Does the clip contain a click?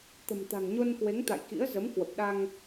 no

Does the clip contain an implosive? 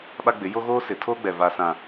yes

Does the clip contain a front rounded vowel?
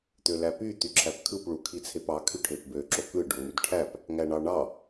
yes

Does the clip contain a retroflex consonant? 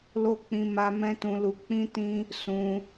no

